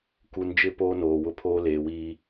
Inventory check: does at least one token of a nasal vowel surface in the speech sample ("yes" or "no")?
no